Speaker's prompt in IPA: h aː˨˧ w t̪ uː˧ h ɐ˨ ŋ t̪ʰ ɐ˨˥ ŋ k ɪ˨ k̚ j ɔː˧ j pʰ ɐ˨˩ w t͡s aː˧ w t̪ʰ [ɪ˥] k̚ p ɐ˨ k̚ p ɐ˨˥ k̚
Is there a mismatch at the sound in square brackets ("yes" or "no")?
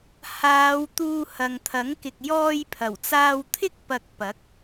no